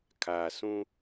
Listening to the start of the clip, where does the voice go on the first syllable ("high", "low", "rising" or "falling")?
low